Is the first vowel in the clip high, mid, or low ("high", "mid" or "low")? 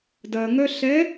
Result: low